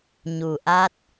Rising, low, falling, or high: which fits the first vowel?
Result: low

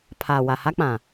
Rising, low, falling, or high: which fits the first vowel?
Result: low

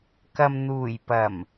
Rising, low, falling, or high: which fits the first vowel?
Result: low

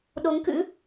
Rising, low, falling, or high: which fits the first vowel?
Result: rising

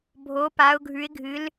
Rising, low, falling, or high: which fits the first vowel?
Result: rising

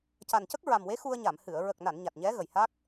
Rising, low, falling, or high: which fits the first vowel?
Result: low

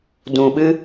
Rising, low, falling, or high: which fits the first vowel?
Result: low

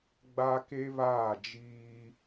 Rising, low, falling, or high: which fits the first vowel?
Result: high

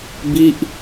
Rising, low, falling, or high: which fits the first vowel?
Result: falling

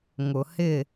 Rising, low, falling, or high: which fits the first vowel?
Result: low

